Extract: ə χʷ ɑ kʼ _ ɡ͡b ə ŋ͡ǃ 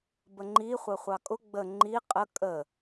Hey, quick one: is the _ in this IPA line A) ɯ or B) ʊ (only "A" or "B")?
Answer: B